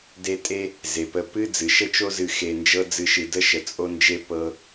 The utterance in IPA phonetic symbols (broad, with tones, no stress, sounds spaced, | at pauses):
d e˦ tʼ e˥ | z e˩ p ə˨ p ɨ˦ d͡z ɨ˩ ʃ ə˦ t͡ʃ o˦ z ɨ˨ x e˨ n d͡ʒ ɤ˦ d͡z ɨ˨ ʃ ɨ˩ d ə˦ ʃ ə˩ t͡sʼ o˦ n d͡ʒ e˦ p ɤ˨